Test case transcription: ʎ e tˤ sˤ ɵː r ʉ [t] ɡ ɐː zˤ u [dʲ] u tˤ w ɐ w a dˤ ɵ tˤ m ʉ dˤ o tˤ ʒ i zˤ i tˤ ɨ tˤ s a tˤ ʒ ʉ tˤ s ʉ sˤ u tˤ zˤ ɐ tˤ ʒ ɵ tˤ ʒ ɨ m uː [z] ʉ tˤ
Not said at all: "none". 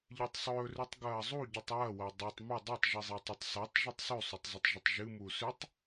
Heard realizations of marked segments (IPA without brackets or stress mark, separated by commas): tˤ, ɟ, s